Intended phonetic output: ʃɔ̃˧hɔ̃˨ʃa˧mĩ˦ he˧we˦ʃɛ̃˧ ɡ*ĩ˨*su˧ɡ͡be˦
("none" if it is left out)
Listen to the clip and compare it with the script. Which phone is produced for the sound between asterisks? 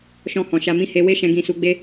ĩ˧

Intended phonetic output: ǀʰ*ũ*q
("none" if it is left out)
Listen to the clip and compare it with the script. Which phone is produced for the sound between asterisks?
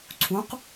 ũ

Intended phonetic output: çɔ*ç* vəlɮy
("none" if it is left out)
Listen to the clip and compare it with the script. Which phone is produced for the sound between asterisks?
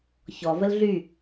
none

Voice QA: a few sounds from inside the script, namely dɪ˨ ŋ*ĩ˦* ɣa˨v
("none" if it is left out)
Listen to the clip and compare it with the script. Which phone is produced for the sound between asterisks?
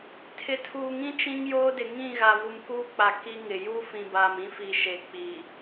ĩ˦˨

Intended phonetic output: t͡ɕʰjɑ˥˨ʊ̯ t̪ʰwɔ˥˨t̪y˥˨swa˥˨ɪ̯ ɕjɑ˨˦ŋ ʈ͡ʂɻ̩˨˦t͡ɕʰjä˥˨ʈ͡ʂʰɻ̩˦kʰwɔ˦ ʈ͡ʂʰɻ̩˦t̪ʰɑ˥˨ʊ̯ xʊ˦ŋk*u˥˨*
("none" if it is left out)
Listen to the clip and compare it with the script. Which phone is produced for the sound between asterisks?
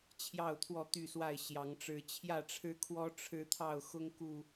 u˨˩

